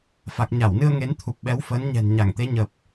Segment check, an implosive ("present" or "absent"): present